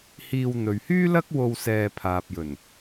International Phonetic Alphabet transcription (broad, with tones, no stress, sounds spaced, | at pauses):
h iː˧ w n̪ ɵ˨ ɥ h yː˥ l ɐ˥ k̚ w o˧ w s ɛː˧ pʰ aː˨ p̚ j ɵ˨˩ n